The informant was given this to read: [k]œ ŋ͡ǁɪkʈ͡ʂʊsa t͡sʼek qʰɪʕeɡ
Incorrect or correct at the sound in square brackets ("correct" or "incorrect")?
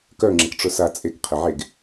correct